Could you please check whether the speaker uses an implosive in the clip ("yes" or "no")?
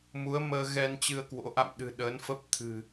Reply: yes